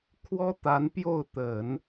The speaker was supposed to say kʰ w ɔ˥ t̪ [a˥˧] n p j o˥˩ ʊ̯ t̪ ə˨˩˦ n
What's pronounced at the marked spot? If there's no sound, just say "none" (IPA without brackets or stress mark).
a˧˥